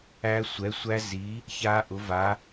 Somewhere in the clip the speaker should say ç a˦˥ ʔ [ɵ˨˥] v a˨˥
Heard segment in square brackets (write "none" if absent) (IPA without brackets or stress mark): ʊ˨˥